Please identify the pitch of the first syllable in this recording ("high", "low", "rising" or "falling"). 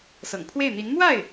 low